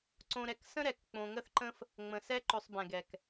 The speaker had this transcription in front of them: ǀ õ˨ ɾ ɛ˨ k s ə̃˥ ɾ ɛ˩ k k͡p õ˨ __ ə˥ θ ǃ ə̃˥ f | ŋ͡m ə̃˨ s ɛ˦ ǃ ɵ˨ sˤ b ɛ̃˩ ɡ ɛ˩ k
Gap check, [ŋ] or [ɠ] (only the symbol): ŋ